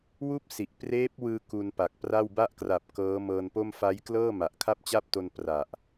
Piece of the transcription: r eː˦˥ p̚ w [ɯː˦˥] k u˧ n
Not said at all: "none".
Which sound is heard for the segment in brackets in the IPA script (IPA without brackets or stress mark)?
ɯː˧